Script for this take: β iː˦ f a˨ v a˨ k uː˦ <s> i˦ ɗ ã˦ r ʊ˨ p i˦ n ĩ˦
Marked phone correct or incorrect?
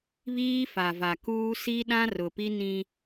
correct